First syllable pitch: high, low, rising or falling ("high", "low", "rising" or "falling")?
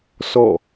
falling